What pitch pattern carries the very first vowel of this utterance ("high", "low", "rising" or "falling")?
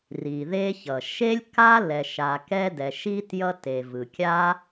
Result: low